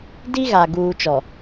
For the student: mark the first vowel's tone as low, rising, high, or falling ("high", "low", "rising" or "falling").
high